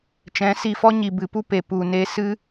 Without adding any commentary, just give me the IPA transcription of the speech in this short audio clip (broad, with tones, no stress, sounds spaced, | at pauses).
t͡ʃ ɛ̃˨˦ s i˧ f ɔ˦ ɲ i˨ b ɨ˨ p u˦ p e˨ p u˧ n e˦ s ɨ˦